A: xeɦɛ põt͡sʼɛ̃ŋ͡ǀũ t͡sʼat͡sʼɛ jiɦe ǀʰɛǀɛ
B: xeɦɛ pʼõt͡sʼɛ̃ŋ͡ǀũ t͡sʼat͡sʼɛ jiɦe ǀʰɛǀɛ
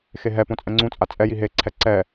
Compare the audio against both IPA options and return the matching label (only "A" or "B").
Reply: A